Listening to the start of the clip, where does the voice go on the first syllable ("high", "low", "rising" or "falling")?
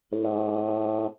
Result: high